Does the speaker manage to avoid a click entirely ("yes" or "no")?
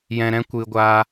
yes